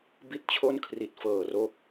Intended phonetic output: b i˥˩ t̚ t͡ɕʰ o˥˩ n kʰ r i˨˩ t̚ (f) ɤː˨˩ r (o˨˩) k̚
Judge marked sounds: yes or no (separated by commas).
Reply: yes, no